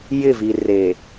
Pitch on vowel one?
falling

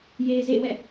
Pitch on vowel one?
low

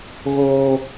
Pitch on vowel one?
high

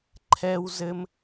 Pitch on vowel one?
high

